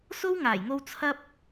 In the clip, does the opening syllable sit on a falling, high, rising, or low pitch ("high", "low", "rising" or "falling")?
high